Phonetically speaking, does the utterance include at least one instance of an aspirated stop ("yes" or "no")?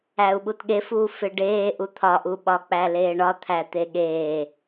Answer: yes